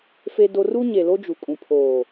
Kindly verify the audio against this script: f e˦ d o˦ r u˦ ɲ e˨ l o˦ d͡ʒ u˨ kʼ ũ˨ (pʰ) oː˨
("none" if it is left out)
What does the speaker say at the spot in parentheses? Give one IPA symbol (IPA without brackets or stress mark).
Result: pʰ